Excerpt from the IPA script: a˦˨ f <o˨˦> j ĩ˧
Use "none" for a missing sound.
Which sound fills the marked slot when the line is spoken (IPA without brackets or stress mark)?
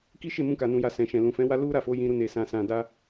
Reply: o˨˦